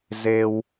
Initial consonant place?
alveolar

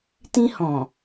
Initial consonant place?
alveolar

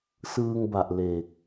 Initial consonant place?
alveolar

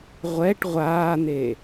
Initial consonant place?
uvular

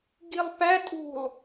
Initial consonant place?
velar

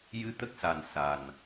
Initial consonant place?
palatal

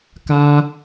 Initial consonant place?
velar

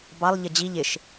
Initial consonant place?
labial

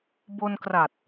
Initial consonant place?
labial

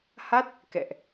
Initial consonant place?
glottal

